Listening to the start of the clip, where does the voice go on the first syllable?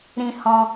high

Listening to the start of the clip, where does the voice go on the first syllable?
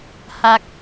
low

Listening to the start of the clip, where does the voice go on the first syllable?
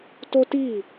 high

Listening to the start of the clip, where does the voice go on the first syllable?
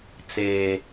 low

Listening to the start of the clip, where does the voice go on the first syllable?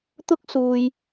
high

